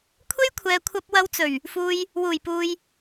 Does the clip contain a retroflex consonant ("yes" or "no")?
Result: no